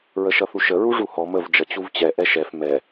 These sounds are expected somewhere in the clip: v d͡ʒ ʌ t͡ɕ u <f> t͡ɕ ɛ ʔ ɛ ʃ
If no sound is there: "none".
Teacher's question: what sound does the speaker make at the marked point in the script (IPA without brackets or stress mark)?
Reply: v